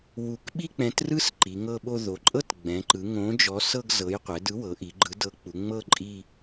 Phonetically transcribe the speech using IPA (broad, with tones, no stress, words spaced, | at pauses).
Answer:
wu˨˥k ɓi˥˧k͡pɛ̃˨˥trɯ˥˧s ǃi˩˧ŋɤ˥˧ɓo˥˧ ðo˩˧ǃʼɤ˥˧t ɡ͡bɛ̃˩˧ǃɯ˩˧ ŋõ˨˥d͡ʒɔ˨˥ sɤ˥˧ɡzɤ˨˥j qʷɛ˩˧dɯ˨˥wɤ˩˧ ʔi˩˧ɡ͡ǃɯ˨˥ dɤ˨˥k͡pu˩˧ŋ͡mɤ˥˧ ǃʼi˥˧